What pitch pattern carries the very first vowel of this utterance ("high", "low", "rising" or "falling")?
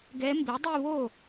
rising